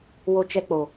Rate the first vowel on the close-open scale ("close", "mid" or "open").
mid